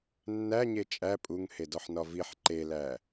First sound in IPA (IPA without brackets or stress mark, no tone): nː